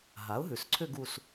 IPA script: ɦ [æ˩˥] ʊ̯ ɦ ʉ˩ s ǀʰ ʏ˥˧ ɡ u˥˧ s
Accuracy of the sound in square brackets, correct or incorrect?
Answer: incorrect